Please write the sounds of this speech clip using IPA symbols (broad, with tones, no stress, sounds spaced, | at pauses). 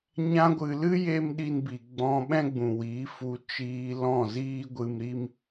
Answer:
ɲ ã˧ ɡʷ ɨ˨ l ɨ˦ j e˦ m ɗ i˧ n b i˨ ɡ͡b ɔ̃˧ ɓ ɛ̃˦ ɡ͡b ũ˨ w iː˨˦ f u˧ t͡ʃ iː˧ l ɔ̃˦˨ z iː˦ ɡʷ ɨ˧ m ɾ i˦ m